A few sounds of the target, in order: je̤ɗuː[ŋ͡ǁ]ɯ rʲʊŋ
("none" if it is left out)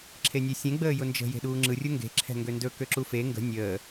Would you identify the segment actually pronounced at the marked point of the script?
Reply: ŋ͡ǁ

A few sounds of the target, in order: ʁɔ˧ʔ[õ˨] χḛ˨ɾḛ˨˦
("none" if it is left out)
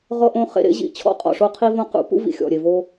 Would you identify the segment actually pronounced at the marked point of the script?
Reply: õ˧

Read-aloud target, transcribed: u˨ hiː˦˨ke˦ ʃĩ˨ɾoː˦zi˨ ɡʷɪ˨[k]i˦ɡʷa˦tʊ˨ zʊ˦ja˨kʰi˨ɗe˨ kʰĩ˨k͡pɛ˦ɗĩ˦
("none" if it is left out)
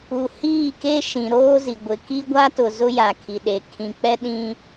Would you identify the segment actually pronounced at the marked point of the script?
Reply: k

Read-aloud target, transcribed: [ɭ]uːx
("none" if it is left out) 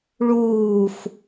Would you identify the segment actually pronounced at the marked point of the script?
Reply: ɭ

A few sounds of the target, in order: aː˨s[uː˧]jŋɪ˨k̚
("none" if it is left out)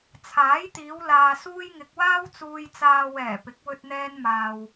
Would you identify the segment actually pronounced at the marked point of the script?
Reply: uː˧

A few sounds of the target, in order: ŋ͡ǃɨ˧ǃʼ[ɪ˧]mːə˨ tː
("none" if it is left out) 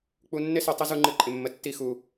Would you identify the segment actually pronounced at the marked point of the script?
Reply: ɪ˨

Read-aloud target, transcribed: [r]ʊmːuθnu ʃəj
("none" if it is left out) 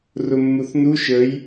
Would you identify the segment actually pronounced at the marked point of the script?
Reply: r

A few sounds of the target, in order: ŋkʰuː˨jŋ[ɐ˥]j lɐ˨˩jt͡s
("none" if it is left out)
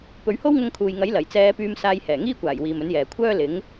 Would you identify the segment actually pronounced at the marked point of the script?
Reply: ɐ˨˥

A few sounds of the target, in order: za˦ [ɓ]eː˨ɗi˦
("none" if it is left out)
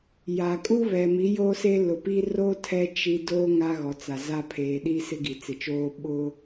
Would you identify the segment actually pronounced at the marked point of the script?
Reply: pʰ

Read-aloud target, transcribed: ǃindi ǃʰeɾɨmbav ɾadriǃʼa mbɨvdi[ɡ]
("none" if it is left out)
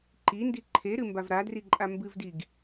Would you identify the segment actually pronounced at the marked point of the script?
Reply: ɡ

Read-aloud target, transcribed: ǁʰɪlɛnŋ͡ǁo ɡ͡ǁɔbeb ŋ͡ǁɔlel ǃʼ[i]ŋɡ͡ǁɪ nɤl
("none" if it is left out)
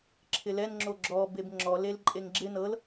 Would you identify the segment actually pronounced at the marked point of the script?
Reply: e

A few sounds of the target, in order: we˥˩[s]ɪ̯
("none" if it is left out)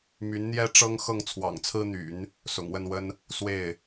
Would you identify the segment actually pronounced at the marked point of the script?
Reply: none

